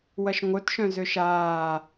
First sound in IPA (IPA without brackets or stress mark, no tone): w